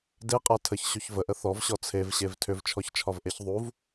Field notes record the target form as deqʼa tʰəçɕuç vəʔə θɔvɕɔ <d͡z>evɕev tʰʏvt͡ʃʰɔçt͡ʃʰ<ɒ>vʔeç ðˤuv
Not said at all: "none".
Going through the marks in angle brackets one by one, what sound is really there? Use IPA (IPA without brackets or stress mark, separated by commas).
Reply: t͡sʰ, ɒ